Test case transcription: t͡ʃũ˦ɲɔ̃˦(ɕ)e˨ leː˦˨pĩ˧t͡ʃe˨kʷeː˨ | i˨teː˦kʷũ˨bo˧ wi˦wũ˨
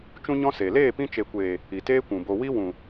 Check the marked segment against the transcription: incorrect: s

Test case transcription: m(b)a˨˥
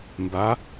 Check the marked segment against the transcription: correct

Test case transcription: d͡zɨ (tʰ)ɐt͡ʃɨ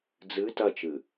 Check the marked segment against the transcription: incorrect: t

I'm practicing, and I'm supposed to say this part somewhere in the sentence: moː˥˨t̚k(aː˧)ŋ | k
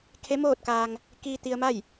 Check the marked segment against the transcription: correct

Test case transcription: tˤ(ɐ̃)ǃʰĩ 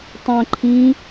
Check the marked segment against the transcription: correct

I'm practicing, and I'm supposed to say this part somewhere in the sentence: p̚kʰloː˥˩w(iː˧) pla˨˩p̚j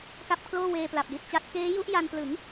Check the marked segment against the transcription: incorrect: eː˧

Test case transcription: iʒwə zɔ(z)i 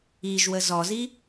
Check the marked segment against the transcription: correct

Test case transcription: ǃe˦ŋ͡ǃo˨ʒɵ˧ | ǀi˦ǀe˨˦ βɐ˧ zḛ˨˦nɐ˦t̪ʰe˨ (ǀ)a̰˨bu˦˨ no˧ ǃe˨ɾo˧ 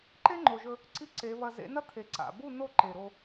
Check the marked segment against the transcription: correct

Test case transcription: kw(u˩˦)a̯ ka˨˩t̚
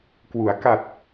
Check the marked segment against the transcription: correct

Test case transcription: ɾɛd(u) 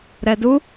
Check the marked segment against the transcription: correct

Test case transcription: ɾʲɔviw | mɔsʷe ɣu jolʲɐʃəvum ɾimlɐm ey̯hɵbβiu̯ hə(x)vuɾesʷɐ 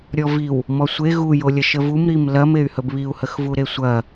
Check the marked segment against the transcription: correct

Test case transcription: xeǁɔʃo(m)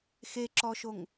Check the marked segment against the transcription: incorrect: ŋ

